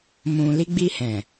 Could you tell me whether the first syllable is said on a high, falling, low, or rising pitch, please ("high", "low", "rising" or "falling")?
low